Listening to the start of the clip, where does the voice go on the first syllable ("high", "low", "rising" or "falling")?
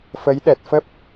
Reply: rising